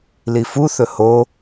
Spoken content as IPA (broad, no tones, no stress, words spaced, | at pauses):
lifuθɵ ho